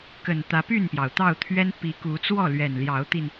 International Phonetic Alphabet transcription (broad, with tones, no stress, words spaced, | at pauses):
kə˨˩nt̪ä˨˦py˥˨npjɑ˩ʊ̯ t̪ɑ˥˨ʊ̯t̪ʰɥɛ˦n pi˨˦ku˨˦t͡swɔ˥˨ lɥɛ˨˩nljɑ˨˦ʊ̯t̪i˧n